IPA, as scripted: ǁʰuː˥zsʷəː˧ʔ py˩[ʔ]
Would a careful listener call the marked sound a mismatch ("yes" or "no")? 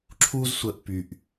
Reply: no